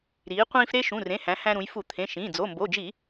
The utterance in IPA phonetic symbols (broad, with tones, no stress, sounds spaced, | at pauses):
ɾ iː˩˧ qʷ ĩː˧ f ɾ e˧ ʃ ũ˩˧˩ r ẽ˩˧˩ h æ̃˩˧ h æ̃˧ ɾ ũ˩˧ j f u˧˩˧ t̪ʰ ẽ˩˧˩ ʃ ĩː˩˧˩ d͡z o˩˧˩ m b o˩˧˩ d͡ʒ i˧˩˧